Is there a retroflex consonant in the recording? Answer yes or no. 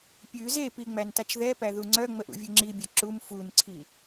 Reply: no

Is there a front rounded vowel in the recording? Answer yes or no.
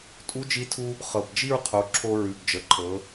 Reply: no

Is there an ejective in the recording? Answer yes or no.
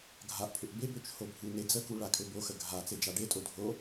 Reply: yes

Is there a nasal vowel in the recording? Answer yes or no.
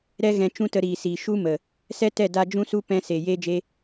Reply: yes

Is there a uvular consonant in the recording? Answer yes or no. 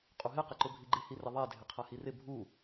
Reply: yes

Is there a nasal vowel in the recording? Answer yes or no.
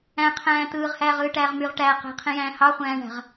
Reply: yes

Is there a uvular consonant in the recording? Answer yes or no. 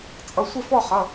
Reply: yes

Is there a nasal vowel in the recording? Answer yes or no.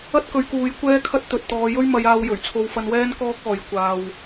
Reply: no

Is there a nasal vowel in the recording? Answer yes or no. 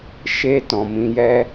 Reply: yes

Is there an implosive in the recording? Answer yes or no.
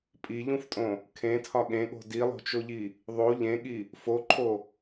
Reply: yes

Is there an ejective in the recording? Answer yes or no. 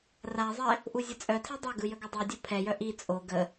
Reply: yes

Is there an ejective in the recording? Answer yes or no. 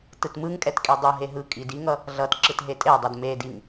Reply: yes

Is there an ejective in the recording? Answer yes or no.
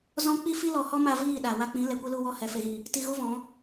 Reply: no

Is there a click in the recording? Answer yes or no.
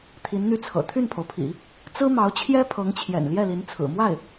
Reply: no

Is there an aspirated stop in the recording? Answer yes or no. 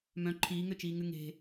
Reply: yes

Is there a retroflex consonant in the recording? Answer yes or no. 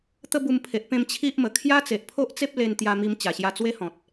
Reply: no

